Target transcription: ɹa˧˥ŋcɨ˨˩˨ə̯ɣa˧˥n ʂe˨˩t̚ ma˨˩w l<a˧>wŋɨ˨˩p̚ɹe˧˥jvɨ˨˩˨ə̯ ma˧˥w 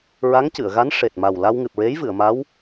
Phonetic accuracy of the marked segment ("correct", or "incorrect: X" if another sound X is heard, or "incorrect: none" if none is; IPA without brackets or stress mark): correct